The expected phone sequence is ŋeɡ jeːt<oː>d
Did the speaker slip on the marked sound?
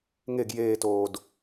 no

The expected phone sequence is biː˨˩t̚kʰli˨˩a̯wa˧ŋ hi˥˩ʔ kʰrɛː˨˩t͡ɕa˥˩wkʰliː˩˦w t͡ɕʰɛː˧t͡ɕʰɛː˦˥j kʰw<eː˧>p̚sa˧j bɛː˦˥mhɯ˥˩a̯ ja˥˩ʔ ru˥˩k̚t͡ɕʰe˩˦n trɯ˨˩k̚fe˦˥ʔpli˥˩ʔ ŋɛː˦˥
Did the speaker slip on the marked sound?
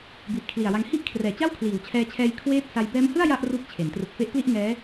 yes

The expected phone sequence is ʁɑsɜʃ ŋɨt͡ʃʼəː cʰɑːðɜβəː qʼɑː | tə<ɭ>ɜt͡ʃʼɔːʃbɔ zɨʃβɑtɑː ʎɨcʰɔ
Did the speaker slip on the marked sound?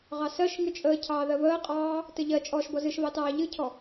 yes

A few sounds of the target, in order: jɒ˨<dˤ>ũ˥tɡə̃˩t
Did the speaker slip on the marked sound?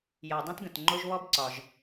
no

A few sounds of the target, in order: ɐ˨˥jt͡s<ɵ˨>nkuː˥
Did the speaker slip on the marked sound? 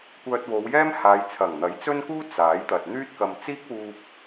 yes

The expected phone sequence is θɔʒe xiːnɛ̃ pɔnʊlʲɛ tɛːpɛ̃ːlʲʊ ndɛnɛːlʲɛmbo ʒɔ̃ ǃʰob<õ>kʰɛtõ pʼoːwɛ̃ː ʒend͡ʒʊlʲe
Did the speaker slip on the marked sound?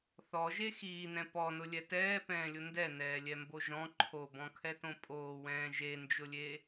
yes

